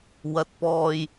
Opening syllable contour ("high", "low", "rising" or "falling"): low